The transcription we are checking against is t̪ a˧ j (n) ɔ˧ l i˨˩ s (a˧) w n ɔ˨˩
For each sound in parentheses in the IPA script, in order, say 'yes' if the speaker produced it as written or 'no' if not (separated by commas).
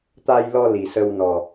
no, no